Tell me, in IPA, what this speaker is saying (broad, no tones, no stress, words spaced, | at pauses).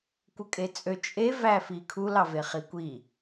kʷɯkʼet͡sʼø t͡ʃʼe væfikʰu lɑveχikʷi